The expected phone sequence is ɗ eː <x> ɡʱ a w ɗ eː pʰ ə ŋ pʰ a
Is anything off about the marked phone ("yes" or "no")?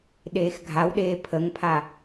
no